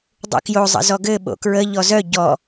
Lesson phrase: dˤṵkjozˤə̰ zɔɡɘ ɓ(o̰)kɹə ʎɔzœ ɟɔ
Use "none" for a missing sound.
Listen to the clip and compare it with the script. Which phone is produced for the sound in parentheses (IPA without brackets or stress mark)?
o̰